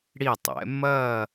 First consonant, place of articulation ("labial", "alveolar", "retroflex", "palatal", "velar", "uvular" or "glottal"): retroflex